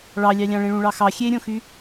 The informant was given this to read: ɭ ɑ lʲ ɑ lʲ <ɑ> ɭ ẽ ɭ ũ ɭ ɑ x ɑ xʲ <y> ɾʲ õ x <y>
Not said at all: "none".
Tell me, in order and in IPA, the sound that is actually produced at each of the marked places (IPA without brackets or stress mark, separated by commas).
ɑ̃, e, y